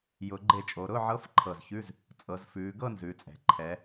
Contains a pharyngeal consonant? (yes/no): yes